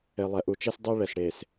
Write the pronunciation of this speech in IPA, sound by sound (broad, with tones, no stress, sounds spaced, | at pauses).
e˨ lˠ ɛ˨ ʔ u˨ t͡ʃ e˦ s dˤ o˦ ɭ ɛ˨ s ɽ e˨ s